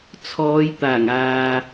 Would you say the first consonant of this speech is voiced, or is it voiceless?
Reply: voiceless